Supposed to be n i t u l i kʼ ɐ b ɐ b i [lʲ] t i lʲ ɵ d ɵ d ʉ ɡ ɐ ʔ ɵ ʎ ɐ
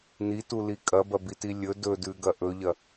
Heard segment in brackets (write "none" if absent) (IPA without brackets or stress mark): none